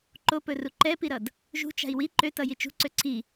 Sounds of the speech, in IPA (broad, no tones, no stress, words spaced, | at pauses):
ǃopɵru ǃɛpiɾʌd | ʒṳt͡ʃa̤i̯ wi ǃøtʌji t͡ʃṳǀø ǀʰi